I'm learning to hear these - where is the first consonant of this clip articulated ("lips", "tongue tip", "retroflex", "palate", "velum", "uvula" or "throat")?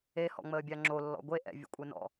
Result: throat